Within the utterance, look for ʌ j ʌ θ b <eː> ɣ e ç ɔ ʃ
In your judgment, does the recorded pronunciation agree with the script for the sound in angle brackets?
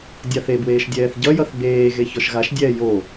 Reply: yes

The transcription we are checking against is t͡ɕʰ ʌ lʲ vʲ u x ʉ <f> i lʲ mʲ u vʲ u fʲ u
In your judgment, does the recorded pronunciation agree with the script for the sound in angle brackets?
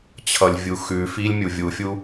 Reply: yes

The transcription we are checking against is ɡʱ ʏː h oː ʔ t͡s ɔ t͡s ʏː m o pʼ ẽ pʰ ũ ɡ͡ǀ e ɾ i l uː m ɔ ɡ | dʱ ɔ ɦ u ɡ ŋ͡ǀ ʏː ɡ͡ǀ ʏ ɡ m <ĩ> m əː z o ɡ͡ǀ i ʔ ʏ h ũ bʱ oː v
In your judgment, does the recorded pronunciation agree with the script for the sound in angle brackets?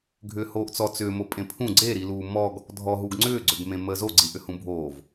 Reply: no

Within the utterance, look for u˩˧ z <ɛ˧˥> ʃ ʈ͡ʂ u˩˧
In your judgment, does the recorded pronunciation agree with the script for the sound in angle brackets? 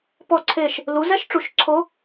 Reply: yes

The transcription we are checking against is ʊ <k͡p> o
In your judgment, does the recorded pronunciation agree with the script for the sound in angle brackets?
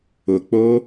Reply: yes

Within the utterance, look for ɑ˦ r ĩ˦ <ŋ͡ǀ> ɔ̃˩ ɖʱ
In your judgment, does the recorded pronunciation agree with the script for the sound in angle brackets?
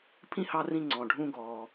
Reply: yes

